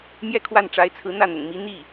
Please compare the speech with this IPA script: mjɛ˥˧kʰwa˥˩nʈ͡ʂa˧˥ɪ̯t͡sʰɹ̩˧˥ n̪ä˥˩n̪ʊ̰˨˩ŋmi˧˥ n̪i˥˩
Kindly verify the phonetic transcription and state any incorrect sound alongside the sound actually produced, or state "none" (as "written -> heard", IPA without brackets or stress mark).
none